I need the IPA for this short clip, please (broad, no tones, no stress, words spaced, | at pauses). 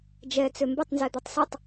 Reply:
d͡ʒɛ t͡sømbɪtˤ nzɛd̪øtˤsʏtˤ